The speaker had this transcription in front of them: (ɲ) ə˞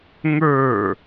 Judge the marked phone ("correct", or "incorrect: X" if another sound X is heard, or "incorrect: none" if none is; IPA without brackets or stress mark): incorrect: ŋ